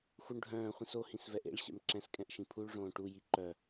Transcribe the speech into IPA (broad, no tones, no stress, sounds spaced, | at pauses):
x u ɳ ɖʱ œ̃ː χʷ ĩ s o h ĩ s v ɛ ʔ ḛ ɭ ɕ ɛ̰ m ǁ ɛ̃ s kʼ ɛ̃ ʔ ʃ ĩ pʰ u ɭ ʐ õː ʈ u j i ǃ œ